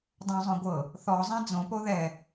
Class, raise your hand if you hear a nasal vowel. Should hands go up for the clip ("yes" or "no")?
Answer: yes